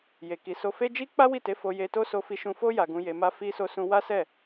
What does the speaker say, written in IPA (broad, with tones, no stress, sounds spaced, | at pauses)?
j e˨ k i˨ s o˧ f e˦ d͡ʒ i˦ k͡p a˦ w i˦˨ t e˨˦ f o˧ j e˧ t o˦ s o˧ f i˧ ʃ ũ˧ f o˦ j a˧ ɡ ũ˧ j e˧ m a˦ f i˦ s o˦ s ũ˦ w a˦ s ɛ˦˨